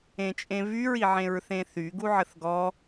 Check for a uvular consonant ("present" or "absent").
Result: absent